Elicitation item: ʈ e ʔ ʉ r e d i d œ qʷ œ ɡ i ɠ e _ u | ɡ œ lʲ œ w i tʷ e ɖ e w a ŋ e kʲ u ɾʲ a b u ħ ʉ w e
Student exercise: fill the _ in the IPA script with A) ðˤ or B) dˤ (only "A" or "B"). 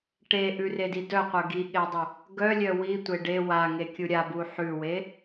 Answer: B